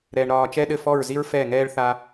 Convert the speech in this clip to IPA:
ɾɛː˦ɳɾɒː˦ t͡ʃɛ˦ɗɘ˦˨fɔ˦˨ɹzi˦ɹ fɛ˦˨ŋɛː˦ɭ θa˦

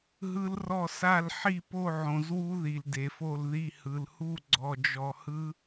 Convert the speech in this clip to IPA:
ɦɯ˦˥lrɔ˥˧sa˥˧l ħi˥˧po˥˧ʕõ˨zwu˦˥ ði˨lde˨fo˥˧lði˥˧ hɯ˨lhu˥˧ ɡ͡ǀɔ˨d͡ʒɔ˨ hɯ˦˥

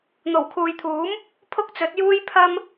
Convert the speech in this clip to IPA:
n̪o˨˩wkʰuː˨jt̪ʰuː˨˥m | pʰʊ˥k̚t͡sɵ˨˥t̚juː˥j pʰɐ˥m

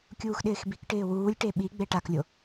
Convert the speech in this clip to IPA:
kʲuːxɗɪːxbikʈɪː wuːlʲʈe ɓiɡ͡be ʈaklʲo

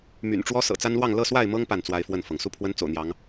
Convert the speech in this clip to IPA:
my̰˨˩nʈ͡ʂwɔ˦ sɤ̰˨˩t͡sa˦nlwɑ˥˨ŋ lɤ˥˨swa˥˨ɪ̯mɤ˦ŋ pa˥˨nt͡swa˦ɪ̯fwə˥˨nfɤ˩ŋ su˥˨pʰwə˦nt͡so̰˨˩ʊ̯n̪jɑ˨˦ŋ

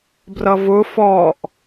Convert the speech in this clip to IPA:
brʌvʊ fɔʔ

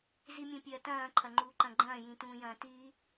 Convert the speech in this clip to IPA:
zimʲũpʲɐːtɐ̃ː ǃʰɐŋ͡ǃuːǃɐ̃ɡ͡ǃɐ̃ː jĩtũːjɐ̃ːti

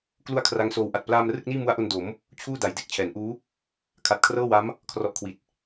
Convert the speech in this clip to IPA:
klu˦˥a̯ kʰra˦˥ŋsoː˦˥wʔa˨˩t̚ plaː˧m rɯ˥˩k̚niː˥˩mu˦˥a̯ʔo˧n do˩˦m | t͡ɕʰuː˥˩ da˩˦jde˦˥k̚t͡ɕʰɛː˩˦n ʔuː˦˥ | kʰa˨˩t̚kʰrɤː˥˩wa˦˥m | kʰrɔ˦˥ʔkʰwi˨˩t̚

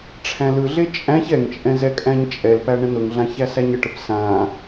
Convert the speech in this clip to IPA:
ʈ͡ʂʰæ̃lɯɮe t͡ʃʼæ̃ç ɛŋt͡ʃʼɛ̃z ɛkʼæ̃ɲt͡ʃʼɛlpæ ɳə̃nʊŋɮã çæsæɲəʈəp sã

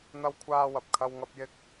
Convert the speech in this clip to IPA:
n̪ɐ˥wkʷʰaː˥wɐ˧p̚kʰɐ˥w ŋɐ˥p̚jɪ˥k̚

